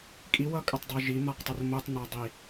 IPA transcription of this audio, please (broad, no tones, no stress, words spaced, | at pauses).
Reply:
kʼiwʌkʼətˤdˤø ʒimaqtˤər motˤnadˤi